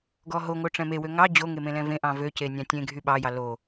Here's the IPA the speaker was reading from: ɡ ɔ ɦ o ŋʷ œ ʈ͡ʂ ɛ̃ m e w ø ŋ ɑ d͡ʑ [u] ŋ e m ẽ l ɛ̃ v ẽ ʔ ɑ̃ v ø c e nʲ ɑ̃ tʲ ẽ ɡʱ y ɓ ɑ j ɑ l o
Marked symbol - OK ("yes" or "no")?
no